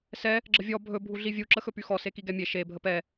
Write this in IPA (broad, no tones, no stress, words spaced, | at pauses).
sɛ | ɡ͡ǁəvʲɔ bʱɵ bʱuɮivʲu ǁəxɵpyxɔ sekiɡɛmʲe ʃe bʱəpɛ